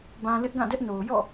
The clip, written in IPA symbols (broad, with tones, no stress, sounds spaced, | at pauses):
b ã˨ l ɪ˦ ʔ ɡ ã˦˨ d ɛ˦ ʔ n o˨ ʊ̯ j ɔ̰˦˨